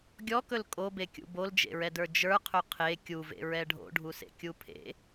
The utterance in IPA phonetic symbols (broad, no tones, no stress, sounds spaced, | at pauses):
ɡʲ ɔ k ɵ l kʼ o b e kʲ ṵ b o l d͡ʒ ḛ ɹ ɛ d ə˞ d͡ʒ ə˞ qʰ ɵ qʰ e kʲ u v ḛ ɹ ɛ ɖʱ o̰ ɖʱ u s ḛ kʲ u pʰ ḛ